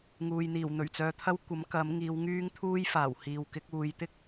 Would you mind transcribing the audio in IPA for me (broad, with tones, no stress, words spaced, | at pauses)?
ŋuː˨jn̪iː˨˩wn̪ɵ˨˩ɥt͡sœː˧ t̪ʰɐ˥wkʷɐ˨˥m kɐ˨˥m ŋiː˨˧wŋyː˥ŋt̪ʰuː˥jfaː˨˩w hiː˨wkɪ˨˥k̚uː˨j t̪ɪ˥k̚